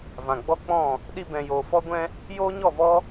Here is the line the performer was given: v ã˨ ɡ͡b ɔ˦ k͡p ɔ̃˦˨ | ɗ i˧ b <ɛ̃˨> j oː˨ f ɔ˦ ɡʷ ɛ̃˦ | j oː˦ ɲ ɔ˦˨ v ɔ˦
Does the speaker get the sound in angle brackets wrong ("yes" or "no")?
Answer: no